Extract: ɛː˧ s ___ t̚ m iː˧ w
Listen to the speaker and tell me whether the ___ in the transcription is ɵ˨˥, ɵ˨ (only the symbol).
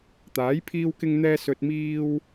ɵ˨